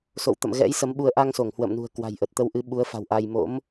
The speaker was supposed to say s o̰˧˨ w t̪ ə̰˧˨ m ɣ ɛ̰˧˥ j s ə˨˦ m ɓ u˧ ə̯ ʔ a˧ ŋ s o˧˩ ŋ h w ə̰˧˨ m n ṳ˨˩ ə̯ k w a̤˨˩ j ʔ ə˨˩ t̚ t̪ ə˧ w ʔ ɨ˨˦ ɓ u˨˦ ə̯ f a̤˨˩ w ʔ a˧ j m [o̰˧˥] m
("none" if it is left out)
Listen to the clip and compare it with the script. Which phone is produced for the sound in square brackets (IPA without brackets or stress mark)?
o̰˧˥